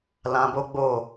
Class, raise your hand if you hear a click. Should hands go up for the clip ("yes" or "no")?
no